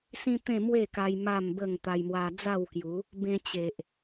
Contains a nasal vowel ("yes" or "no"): yes